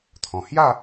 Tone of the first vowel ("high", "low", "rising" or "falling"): low